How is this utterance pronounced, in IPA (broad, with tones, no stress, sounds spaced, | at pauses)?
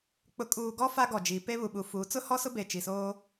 k͡p ʊ˨ kʼ uː˨ ɡ ɔ˦ f a˦ ɡ ɔ˨ d͡ʒ i˨˦ p e˦ β u˨ ɓ u˨ f uː˨˦ t͡s ʊ˦ h ɔ˦ s ʊ˦ b e˨ t͡ʃ i˨ s oː˦